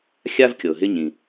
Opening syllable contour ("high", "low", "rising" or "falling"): high